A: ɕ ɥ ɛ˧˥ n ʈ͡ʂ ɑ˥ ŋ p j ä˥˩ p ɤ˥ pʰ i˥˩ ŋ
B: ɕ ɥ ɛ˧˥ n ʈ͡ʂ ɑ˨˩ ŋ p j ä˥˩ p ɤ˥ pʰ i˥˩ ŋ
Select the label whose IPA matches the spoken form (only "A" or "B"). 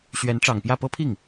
B